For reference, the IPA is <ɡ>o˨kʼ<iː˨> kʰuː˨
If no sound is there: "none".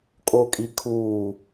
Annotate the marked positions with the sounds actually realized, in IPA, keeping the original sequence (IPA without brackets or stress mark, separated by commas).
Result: kʼ, i˨